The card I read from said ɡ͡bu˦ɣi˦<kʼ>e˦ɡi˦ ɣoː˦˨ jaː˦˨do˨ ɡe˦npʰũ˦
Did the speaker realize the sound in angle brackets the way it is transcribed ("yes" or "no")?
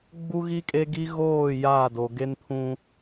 yes